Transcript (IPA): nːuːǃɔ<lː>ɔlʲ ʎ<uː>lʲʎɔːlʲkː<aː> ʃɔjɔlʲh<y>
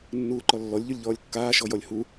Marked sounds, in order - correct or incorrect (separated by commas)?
correct, incorrect, correct, incorrect